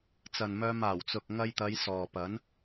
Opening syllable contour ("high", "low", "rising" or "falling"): low